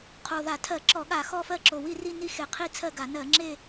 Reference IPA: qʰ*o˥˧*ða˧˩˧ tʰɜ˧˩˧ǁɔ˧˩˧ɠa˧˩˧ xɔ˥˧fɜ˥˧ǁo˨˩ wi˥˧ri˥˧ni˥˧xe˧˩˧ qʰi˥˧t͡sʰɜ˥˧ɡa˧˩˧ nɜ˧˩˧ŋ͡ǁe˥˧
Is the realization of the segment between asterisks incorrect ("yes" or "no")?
yes